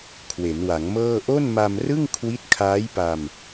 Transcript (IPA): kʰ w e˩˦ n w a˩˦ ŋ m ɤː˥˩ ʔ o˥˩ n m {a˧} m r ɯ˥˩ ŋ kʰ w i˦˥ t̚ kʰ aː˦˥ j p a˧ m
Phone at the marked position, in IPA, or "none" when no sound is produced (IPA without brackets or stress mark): a˧